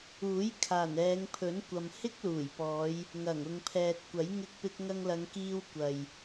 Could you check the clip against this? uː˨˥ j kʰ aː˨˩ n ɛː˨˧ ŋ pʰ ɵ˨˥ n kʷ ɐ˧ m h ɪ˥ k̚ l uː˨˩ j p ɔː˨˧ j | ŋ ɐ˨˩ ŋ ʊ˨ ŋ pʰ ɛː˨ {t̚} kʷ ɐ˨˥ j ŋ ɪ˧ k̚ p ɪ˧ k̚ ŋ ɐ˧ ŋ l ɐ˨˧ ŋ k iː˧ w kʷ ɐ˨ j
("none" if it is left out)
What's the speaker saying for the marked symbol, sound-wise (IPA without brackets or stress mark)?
t̚